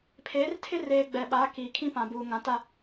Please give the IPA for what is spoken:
pʰ eː˨˦ r tʰ ɪ˦ r eː˨ ɡ͡b ɛ˨ ɓ aː˨˦ k iː˨ kʰ ĩ˦ p ã˨ b uː˨ ŋ ã˨ t a˦

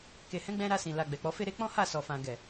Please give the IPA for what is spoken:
k e˨ h ɛ̃˨˦ ɡ͡b ɛ̃˧ ɾ a˧ s ĩ˨ l a˨ ɡ͡b ɛ˨ k͡p ɔ˨˦ f e˦ ɾ e˧ k͡p ɔ̃˦ h a˦˨ s ɔ˨ f ã˨ ɡ ɛ˨

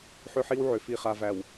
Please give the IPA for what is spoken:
ħ ʏ˦ ħ i˦ w ʕ ʏ˨ f i˨ χ a˨ v æ˨ w

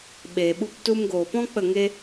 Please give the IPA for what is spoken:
ɓ eː˨ ɓ u˧ p t u˧ m ɡ oː˨ p ɔ̃˦ k͡p ə˦˨ ŋ e˦

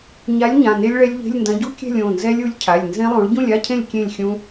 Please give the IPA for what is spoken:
ɲ a˨˥ lʲ ɲ ã˩˧˩ n e˦˥ lʲ ɭ ɛ˦˥ lʲ ʎ e̤˧˥˧ lʲ n d ɐ̃˨˥ ɟ u˦˥ kʲ ɛ̤˥˨ lʲ õ˩˧˩ n z ɛ˦˥ lʲ u˨˥ lʲ cʰ a˩˧˩ lʲ n z ẽ˦˥ lˠ õ˨˥ ɭ ɟ ũ˥˨ lʲ a˧˥˧ cʰ ẽ˥˨ lʲ kʲ ẽ˥˨ lʲ xʲ ũ˦˥

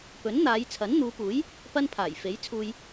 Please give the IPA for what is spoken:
p ɵ˨˥ n n̪ aː˨˧ j t͡sʰ ɐ˨˥ n n̪ uː˨˧ p uː˨˥ j | p ɐ˥ n pʰ aː˨˩ j f e˨˥ j t͡sʰ uː˧ j

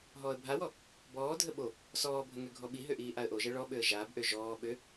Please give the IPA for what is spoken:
ɦ ɔː ə̯ bʱ a w ɔ | b ɔː dʱ ə ɓ o | s ɔː bʱ ə ŋ ø ɡʱ ɔ ɓ i ɦ ø ʔ iː ʔ a ə̯ ʔ o ʒ ɛ ɭ ɔ ɓ ø ə̯ ʒ aː b ʔ ø ʒ ɔː ɓ ø

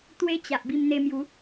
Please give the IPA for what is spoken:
t̪ w e˦ t͡ɕ a˨ ʔ b i˧ m n̪ e˧ m j u˨˦

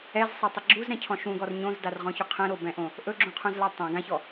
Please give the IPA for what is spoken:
ɛ z sˤ ɘ tˤ ɘ ɡ͡ǁ u z ɾ ɛ̃ cʰ ɔ̃ ʃ ũ ɡ ɔ r ɲ õ z d a r ʁ ɔ̃ ç u qʰ ɛ̃ ɾ o b ɛ̃ ʔ õ | ʔ ɵ ɡ͡ǁ ũ qʰ ũ z l a tˤ ã ɡ ã ç ɔ

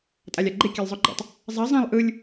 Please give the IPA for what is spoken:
tʼ a lʲ a ɡ͡ǃ e kʲ a lʲ zˤ o ɡ͡ǃ ɛ̰ tˤ | zˤ ɛ zˤ ɛ̃ lˠ ʔ ɯ lʲ

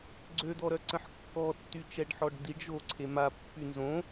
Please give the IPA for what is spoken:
ɡ͡ǀ ø d̪ ɔ ɾ œ ǀ ə̃ ħ kː ɔ tː y t͡ʃ ɛ ɖ ħ ɔ ɖ d̪ i ɖ ʒ o ǀʰ e m a pː y n z õ

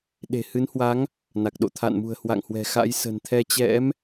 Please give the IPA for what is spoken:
ɗ e̤˨˩ h ɨ˨˦ n h w a˨˦ ŋ | n a˨˩ k̚ ɗ o̰˧˨ t̪ʰ a̰˧˨ n m ṳ˨˩ ə̯ h w a̰˧˨ ŋ h w ɛ̤˨˩ x a̰˧˥ j s ə̤˨˩ n t̪ʰ ɛ˧ t͡ɕ ɛ̰˧˥ m

